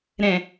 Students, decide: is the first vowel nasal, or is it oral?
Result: nasal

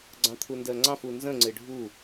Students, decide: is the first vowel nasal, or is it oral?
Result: nasal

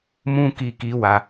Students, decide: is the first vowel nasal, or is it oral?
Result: nasal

